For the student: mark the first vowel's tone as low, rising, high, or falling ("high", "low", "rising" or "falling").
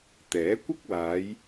rising